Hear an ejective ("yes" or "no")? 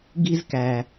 no